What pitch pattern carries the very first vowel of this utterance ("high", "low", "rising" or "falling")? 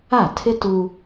falling